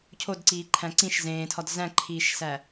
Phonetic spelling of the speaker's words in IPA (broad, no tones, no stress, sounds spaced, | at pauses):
cʰ o d ǀ iː ǃʰ æ̃ ǀ ĩ ʃ z ẽː tʰ ɒ d z æ̃ ǃʰ iː ʃ s æ